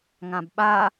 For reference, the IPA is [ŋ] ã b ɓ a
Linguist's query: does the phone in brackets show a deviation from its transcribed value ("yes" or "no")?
no